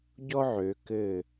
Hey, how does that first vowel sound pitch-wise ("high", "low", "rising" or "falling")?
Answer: high